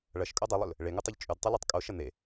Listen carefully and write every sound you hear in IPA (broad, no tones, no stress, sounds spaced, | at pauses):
ɭ ɐ ʃ kʼ o dˤ ɨ lˠ ɵ l | ɭ e ŋ u tˤ ʉ ʎ t͡ʃʼ ʉ d tˤ u l e tˤ kʼ o ʃ ɐ n̪ e